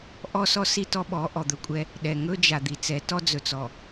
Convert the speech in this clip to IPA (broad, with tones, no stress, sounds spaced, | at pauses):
ʔ ɔ˦ s ɔ˦ s i˦ t ɔ˦ ɓ ɔ˨˦ ʔ ɔ˨ d̪ ɵ˨ kʷʼ ɛ˦ | ɗ ɛ˨ ŋ ɵ˦ d͡ʒ a˨ d̪ i˨ t͡s ɛ˨˦ t ɔ˦ d͡z ɵ˨ t͡s ɔ˨